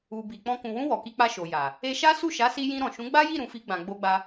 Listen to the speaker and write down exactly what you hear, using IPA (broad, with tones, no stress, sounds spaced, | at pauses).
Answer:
u˨ b i˨ k͡p ɔ̃˧ k ũ˨ w ũ˧ w ɔ˨ k i˧ k͡p a˧ ʃ o˨ j a˨ | e˧ ʃ a˦ s u˦˨ ʃ a˨˦ s i˧ j ĩ˧ ɾ ɔ̃˨ ʃ ũ˨˦ ɡ͡b a˦ j i˦˨ ɾ ũ˨ f i˧ ɡ͡b ã˨ ɡ͡b o˧ ɡ͡b a˧